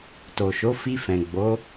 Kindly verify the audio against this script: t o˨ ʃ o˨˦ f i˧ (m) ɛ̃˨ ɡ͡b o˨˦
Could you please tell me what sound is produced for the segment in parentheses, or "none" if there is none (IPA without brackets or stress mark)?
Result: f